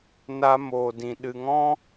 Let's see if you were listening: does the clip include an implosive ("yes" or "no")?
yes